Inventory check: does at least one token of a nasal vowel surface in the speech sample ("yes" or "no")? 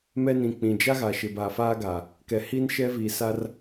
yes